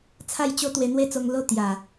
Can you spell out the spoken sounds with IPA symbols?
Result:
t͡sʰa˥˧jt͡ɕo˦ t̪we˧n̪we˦t͡so˧ŋ lo˦ t̪ja˨˩

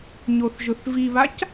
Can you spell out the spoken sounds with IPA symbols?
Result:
ɲoθʒʊθviβac

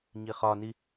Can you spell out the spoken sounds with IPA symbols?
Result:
ɲiχɒni

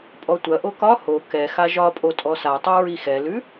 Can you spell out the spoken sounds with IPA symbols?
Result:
pʼɔtʷɐʔo kɒ ho kɛ xaʒɒpʼo tʼɔsatˤʉ ɹixɛlʉ

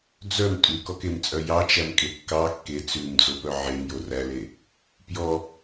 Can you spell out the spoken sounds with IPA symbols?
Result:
d͡zœm tʼʉkɔkemt͡sʼœ jɑt͡ʃæmkʼe kːɑ kːe t͡sʉmd͡zopœ ʕemjo ræle | pjɔ

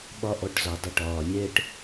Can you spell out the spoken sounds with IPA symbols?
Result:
ɓɒ˦ʔɔ˧ʈ zɒ˨dˤɪ˧ʈɒː˨lʲɛː˦ʈ

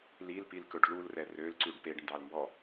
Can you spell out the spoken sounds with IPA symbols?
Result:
lilpilkɵɖ lulrɛ rølǀʉɖ peɖndɑlmbɔ

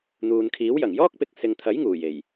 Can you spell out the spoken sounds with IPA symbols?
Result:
n̪uː˨nkʰiː˨˥wjɐ˨˩ŋ jɔː˥k̚pɪ˨k̚sɪ˨ŋt̪ʰɐ˨˥j ŋuː˨˩je˨˩j

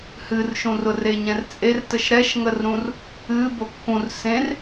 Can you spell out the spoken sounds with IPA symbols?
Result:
hɨrʃũrʊr eɲɛ̃rt͡sʼertəʃ ɾɛʃŋərɾũr | ɨ bokːũr sẽr

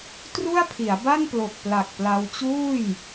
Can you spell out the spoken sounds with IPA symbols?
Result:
tru˥˩a̯pʰi˩˦a̯ba˥˩nplo˨˩k̚ pla˨˩k̚ pla˧w t͡ɕuː˥˩j

